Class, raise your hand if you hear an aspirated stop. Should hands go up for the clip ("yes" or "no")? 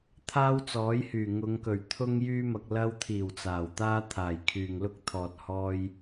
yes